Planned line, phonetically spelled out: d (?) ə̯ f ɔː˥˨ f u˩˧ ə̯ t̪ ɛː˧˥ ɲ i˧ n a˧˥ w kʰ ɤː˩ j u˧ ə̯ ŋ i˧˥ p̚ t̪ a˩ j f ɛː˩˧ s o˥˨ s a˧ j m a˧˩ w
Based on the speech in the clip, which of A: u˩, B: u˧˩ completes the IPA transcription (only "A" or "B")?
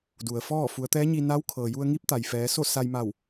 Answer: A